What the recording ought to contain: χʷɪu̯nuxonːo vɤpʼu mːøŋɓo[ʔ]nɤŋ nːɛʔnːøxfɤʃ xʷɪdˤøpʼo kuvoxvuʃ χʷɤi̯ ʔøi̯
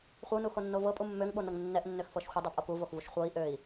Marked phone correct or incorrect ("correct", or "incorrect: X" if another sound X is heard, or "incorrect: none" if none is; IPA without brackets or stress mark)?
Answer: incorrect: none